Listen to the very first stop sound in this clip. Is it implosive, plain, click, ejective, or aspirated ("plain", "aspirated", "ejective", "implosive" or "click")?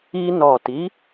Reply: plain